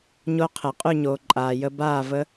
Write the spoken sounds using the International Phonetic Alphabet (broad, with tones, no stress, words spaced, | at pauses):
ɲo˦˥qʰɘ˨˩˦qʼy˥˧ɲoː˨ ǃʼaː˨jə˦˥ baː˥˧və˦˥